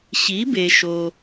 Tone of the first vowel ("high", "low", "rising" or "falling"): rising